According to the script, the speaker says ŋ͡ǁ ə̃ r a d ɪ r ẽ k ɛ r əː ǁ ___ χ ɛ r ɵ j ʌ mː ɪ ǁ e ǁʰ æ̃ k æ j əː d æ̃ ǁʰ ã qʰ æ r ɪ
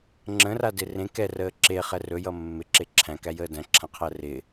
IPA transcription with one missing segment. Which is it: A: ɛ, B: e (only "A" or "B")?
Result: B